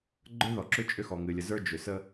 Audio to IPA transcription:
ɡ͡ǃ ə˞˦ ð ɔ˨ ǁ ʏ˦ t͡ʃʼ ʏ˦ x ɔ˨ ŋ ɨ˨ lʲ ə˨ z ə˞˦ d͡ʒ ʏ˨ s ə˦

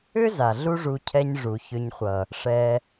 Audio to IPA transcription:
ʏ˦ z a˨ ɮ u˦ ʐ u˧ cʰ ɛ˧ ɲ ʐ u˨ ç ʏ˧ ɲ χʷ ʌ˨ | ʂ ɛ˧

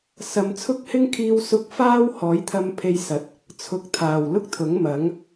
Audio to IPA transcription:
s ɐ˨ m t͡sʰ ʊ˥ k̚ h ɪ˥ ŋ kʰ iː˧ w s ʊ˧ k̚ f aː˥ w h ɔː˨˥ j t̪ʰ ɐ˧ m pʰ e˧ j s ɐ˨˥ t̚ | t͡sʰ ʊ˨ k̚ t̪ʰ aː˨˩ w l ʊ˥ k̚ t̪ʰ ʊ˨˥ ŋ m ɐ˨˥ ŋ

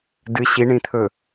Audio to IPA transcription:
d ɨ ɕ i ɳ ĩ t̪ʰ ɵ

